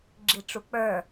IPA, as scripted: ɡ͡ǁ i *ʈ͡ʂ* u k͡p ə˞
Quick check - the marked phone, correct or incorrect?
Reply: correct